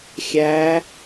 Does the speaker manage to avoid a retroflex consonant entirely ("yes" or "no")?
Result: yes